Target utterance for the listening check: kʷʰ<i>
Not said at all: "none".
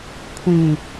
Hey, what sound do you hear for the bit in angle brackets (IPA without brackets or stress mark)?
ĩ